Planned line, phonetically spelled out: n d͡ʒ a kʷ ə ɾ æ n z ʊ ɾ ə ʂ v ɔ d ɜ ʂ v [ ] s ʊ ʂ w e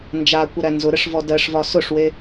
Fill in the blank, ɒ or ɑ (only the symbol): ɒ